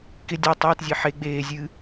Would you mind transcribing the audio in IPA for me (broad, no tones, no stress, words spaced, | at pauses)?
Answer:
kɪ dʲa tˤɪːtzʲe ħe ɡ͡beː zʲɨ